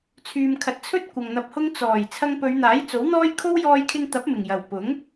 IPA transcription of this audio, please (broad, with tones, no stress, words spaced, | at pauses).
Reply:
t͡sʰyː˨mkʰɐ˨t̚t͡sʰɵ˥t̚ kʷɐ˨ŋn̪ɐ˧p̚hʊ˥ŋ t͡sɔː˨˩j t͡sʰɐ˧ŋpɵ˨˧ɥn̪aː˨˥j t͡so˨˥wn̪ɔː˥j kʰo˥wjɔː˧jkʰɪ˧ŋt̪ɐ˨˥p̚ mɪ˨˩ŋjɐ˨˩w pʊ˨˥ŋ